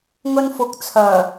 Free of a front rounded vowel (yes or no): no